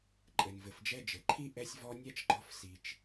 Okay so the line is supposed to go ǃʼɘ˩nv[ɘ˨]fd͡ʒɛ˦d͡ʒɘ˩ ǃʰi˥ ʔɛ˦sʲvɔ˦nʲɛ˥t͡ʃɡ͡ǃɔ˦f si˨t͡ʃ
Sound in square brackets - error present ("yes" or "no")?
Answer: yes